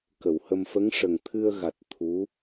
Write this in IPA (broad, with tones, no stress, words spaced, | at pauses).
kə˨˩˨whə˧m fə˧˥ŋʂə˨˩ŋ t̪ʰɨ˧ə̯ɣa˨˩t̚ t̪ʰu˧˥